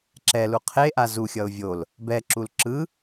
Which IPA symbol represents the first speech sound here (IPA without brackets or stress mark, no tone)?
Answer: ǁ